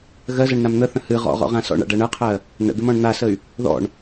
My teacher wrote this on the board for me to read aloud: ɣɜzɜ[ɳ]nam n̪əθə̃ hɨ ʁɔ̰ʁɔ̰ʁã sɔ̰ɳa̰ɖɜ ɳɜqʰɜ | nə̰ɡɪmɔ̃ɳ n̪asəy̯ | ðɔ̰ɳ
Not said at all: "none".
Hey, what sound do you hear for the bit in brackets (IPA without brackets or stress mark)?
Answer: ɳ